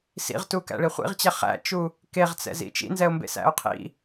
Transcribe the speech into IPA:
s ḭ ʁ t u k æ̰ ɭ i χʷ ḭ ʁ t͡ɕ æ χ æ̰ t͡ʃ u | k e ʁ t͡s ɛ̰ z ḭ t͡ʃ ḭ n z ɛ o̯ m b ḛ s æ̰ o̯ qʰ ḭ

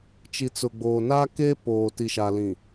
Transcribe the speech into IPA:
t͡ʃ i˨ t͡s ʊ˨ ɡ͡b oː˨ n a˦ k e˦ p oː˨ t i˨ ʃ a˨ l ĩ˨

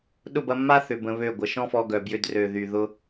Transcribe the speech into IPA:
ɗ ʊ˦˨ b ɐ˧ mː a˦ θ ʏ˨ b ə̃˧ β ø˦˨ ɡʷ ə˨ ʃ ɔ̃˦ f ɔ˧ ɡ œ˨ b j ʏ˧ d r ø˨ ð y˨ ð ʊ˧

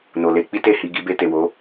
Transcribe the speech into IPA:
n o˨ l e˧ k͡p i˦ t e˦˨ h i˧ ɡ i˧ b e˧ t e˨ w o˨˦

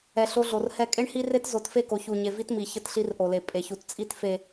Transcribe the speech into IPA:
ɛ˨ ɬ o˦ ɮ o˨ r h ɛ˨ kʼ e˦ ɳ h i˦ r e˦ t z o˨˦ t f e˦˨ k o˨ ç u˨ ɲ e˨ v i˦ t m i˨ ç ə˦˨ t ɬ i˦ r ʔ o˨ l e˨ pʼ e˨ ç u˨ t t͡sʼ i˦ t f e˨

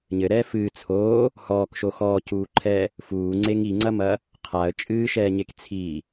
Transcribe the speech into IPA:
ɲ ɘ ɾ ɛː f ɨː t͡sʰ oː | h ɔː k ʃ o x ɔː c uː ǃʰ ɛː | f uː ŋ͡ǀ e ŋ i ŋ͡ǀ ɐ m ɐ | qʰ a ə̯ t͡ʃʼ ɨː ʃ ɛː ɲ e k t͡sʰ i

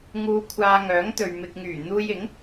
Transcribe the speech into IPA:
ŋ uː˧ kʷʰ aː˧ ŋ œː˨˥ ŋ t̪ ɵ˨ ɥ m ɪ˨ k̚ ŋ yː˨˩ n̪ uː˧ j ɪ˨˥ ŋ

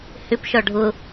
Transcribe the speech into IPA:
h ʏ p ʃ ɔ ɖʱ ʊ

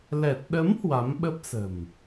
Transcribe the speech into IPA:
l ɛ˨˩ t̚ ɗ ə˨˦ m h w a˨˦ m ɓ ə˦˥ p̚ s ə̤˨˩ m

